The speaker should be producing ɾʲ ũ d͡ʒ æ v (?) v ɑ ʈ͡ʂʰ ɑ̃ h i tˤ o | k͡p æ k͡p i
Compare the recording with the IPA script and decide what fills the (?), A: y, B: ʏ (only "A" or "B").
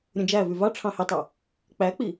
A